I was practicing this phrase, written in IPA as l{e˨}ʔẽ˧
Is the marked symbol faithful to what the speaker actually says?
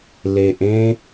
yes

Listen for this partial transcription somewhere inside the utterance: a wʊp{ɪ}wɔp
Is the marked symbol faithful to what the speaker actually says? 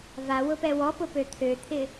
no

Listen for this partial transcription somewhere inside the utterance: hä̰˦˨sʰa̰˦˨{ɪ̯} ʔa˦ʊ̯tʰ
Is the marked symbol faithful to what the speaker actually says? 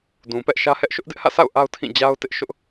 no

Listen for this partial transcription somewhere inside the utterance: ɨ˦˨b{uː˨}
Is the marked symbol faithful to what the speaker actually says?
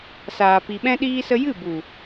no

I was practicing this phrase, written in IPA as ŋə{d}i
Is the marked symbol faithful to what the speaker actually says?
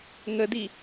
yes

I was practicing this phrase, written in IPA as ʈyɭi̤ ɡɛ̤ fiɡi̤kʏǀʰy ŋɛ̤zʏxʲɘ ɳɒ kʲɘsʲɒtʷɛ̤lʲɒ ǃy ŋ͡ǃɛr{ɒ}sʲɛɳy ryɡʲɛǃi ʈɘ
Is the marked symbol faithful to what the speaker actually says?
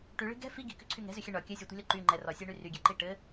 yes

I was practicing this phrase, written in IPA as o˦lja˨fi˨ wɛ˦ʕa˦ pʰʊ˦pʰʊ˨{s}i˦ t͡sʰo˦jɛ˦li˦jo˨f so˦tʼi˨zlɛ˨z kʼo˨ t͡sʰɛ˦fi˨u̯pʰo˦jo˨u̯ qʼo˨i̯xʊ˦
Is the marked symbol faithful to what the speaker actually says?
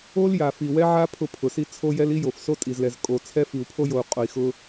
yes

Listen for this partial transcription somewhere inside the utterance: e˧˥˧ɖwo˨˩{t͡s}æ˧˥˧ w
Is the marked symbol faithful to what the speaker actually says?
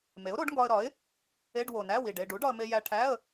no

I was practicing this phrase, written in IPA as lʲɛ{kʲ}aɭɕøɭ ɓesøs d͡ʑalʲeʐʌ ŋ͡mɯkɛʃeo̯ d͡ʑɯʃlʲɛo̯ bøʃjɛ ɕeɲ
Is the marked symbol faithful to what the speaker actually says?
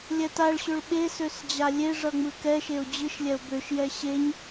no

